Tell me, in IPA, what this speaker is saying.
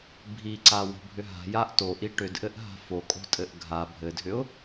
bʱ i ǀ a w o̤ bʱ ʏ ɦ a̤ j a ʔ t o ʔ i ʈ ʏ d ʔ ɘ ʔ ɦ a̤ f o kʼ o̤ tʼ ɘ ʔ ɡʱ a bʱ ɘ dʱ ʏ ʊ̯

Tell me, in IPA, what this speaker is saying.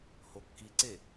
h o kː i ǀ e

